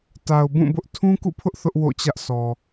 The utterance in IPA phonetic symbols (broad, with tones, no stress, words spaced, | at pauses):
ta˨ʊ̯bũ˦˨bʊ˦ʔ tʰũ˦kṵ˦˨pʰʊ˦ʔ θʊ˦ʔwo̰˦˨t͡ɕä˦ʔsʰɔ˨